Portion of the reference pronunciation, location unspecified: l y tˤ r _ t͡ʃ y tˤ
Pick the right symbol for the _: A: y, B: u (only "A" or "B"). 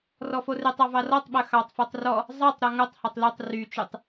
A